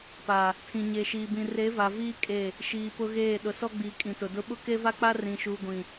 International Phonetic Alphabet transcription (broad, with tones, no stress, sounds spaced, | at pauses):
p a˨ | tʰ ĩ˨ ɲ e˨ ʃ iː˨ b ĩ˨ r e˨˦ v a˨ v iː˦ kʼ e˦˨ | ʃ iː˨ p ʊ˦ ɣ eː˦˨ ɗ ʊ˨ s ɔ˦ ɡ͡b iː˨ kʼ ĩ˨ t ʊ˨ d ʊ˦ ɓ ʊ˦ k e˦ v a˦ k͡p a˦ r ĩ˨ ʃ uː˨ ɡʷ ĩ˨